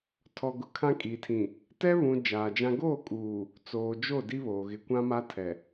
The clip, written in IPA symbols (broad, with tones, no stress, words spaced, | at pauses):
tʰɔ˨ɡʊ˨ kʰã˦kʼiː˨tʰĩ˨ | tɛ˦βũ˨ d͡ʒaː˨d͡ʒã˦ ɡoː˦˨kʼuː˨ | t͡soː˨d͡ʒo˦˨di˦βoː˨ ɣɪ˨kʷã˦ma˦ tʰɛ˨